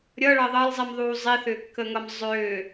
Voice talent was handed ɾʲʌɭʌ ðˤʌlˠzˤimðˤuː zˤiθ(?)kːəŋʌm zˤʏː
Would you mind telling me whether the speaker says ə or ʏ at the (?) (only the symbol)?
ʏ